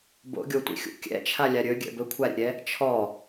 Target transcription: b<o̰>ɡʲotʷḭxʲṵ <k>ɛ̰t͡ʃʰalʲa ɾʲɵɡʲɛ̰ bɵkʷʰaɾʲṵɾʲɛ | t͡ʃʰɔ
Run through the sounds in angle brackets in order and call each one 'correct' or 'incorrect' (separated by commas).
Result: correct, incorrect